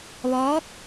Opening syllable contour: rising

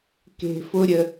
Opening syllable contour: high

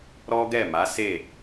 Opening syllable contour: high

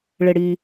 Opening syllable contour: low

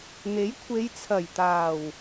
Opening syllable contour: rising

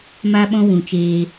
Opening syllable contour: high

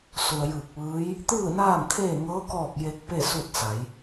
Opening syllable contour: low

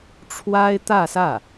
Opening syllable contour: high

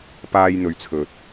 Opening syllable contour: high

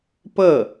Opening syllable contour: falling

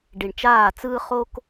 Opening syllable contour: low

